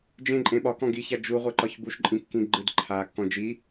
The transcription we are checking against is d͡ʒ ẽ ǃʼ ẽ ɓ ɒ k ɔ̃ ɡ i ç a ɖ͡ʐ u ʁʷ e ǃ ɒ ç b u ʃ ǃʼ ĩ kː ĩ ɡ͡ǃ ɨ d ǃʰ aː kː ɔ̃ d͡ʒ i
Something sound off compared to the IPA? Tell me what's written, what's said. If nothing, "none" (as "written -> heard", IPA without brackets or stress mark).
ɖ͡ʐ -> d͡ʒ